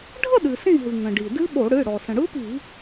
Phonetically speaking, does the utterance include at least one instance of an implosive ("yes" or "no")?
yes